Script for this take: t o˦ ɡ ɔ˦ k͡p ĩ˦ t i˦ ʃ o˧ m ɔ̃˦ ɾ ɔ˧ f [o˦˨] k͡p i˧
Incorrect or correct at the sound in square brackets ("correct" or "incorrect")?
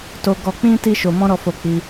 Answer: incorrect